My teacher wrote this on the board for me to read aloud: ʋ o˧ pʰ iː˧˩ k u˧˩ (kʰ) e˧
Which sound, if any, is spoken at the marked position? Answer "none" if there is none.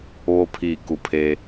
pʰ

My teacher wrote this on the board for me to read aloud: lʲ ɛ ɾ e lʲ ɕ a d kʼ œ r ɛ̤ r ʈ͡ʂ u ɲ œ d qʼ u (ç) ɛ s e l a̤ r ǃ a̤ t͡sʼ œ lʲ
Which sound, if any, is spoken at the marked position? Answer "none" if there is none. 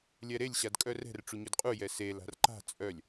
j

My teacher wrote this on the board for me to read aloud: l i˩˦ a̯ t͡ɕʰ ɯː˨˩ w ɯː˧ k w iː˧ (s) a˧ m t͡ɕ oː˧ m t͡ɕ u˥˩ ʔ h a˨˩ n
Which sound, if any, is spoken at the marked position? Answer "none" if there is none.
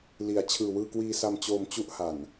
s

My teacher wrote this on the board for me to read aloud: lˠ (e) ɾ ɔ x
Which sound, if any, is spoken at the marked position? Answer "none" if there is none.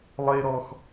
e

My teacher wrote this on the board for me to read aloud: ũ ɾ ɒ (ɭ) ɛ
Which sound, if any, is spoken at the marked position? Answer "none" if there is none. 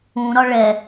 ɭ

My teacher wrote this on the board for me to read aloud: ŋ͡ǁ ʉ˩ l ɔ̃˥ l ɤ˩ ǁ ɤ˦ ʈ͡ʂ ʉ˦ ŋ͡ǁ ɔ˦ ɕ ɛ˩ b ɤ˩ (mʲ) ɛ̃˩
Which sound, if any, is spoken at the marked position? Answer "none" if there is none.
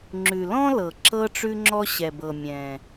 mʲ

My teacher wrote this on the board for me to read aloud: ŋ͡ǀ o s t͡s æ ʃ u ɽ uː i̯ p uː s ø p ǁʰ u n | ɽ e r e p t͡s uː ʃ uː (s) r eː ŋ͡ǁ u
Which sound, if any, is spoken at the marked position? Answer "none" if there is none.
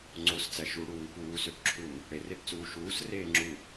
s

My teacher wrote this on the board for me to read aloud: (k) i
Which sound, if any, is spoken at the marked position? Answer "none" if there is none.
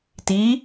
t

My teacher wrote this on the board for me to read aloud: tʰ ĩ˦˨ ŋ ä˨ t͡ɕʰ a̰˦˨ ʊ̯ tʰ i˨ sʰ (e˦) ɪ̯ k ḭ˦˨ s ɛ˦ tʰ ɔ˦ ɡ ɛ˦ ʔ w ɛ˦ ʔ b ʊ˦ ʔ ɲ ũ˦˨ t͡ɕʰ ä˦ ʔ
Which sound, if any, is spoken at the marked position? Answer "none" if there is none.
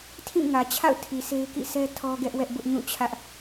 e˦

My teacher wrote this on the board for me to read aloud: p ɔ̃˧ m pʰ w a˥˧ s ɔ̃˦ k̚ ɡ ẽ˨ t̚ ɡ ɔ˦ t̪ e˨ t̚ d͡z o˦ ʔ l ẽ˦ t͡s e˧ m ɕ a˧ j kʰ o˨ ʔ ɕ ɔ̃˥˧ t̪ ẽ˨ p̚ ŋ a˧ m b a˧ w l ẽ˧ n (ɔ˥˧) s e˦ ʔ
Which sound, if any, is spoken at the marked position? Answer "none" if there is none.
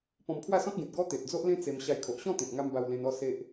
ɔ˥˧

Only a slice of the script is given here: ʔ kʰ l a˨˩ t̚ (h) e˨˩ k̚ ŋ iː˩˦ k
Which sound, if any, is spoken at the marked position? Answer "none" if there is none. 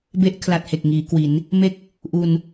h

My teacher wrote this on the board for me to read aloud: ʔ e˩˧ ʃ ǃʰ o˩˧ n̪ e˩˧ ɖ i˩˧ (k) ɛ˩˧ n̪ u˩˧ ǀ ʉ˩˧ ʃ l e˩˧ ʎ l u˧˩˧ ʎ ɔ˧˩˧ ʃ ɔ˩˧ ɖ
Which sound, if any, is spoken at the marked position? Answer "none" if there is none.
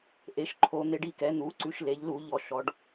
k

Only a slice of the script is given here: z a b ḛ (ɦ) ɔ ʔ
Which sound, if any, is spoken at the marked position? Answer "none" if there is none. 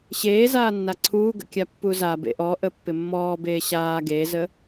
ʔ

